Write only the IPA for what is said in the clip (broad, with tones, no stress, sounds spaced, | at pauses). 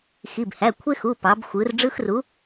x i˩˧˩ b h æ˩˧˩ kʷʰ e˦ x u˩˧˩ p ɑ˩˧ b xʷ ɯ˩˧ r ɖ͡ʐ ɯ˦ x r u˨˥